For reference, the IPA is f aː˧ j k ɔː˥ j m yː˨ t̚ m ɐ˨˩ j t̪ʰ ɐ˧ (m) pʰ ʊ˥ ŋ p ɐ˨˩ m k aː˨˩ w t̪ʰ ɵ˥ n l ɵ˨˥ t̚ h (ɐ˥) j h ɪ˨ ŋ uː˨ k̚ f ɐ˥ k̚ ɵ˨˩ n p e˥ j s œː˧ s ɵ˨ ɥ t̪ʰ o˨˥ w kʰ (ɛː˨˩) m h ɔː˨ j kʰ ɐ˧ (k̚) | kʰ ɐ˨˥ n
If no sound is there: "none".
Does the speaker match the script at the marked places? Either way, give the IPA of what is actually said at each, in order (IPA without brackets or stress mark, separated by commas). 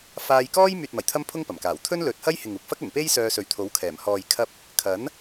m, ɐ˥, ɛː˨˩, p̚